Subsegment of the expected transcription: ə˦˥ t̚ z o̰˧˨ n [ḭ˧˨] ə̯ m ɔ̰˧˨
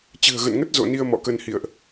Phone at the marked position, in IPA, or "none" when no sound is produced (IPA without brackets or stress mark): i˧